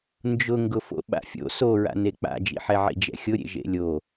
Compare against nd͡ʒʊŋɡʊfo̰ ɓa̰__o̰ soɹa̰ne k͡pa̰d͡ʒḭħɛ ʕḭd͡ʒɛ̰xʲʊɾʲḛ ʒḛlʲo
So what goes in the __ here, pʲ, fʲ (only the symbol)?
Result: fʲ